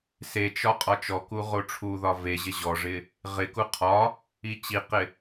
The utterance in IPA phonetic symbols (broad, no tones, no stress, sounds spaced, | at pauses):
s e t͡ʃ ɒ qʼ ɒ t͡ʃ ɔ k u ʁ o ʈ͡ʂʰ u ð ɒ v e ʑ ɪ ʑ ɔ ʐ ɪ | ʁ ɪ k u qʰ ɒ | i t͡ɕ i q ɪ